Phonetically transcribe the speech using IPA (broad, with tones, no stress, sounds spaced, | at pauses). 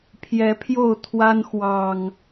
pʰ j ɛ˨˦ pʰ j o˥˨ ʊ̯ t̪ʰ w a˦ n x w ɑ˨˩ ŋ